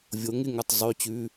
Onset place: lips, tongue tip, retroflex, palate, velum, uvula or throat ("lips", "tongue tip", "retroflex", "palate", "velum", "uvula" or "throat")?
lips